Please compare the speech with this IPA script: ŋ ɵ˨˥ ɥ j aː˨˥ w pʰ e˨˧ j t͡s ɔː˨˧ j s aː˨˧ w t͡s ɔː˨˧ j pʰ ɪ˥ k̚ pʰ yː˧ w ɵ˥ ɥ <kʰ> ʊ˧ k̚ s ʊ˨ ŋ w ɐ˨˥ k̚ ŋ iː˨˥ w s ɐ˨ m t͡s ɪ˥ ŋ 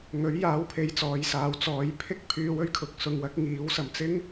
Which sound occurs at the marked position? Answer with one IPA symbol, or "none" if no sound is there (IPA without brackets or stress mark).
kʰ